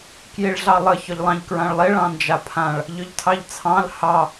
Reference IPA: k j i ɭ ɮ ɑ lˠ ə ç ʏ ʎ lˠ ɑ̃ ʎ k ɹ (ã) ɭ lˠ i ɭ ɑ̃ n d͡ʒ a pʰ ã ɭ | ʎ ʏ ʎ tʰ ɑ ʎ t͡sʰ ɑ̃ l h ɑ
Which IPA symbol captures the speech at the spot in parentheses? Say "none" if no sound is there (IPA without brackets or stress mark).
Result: ã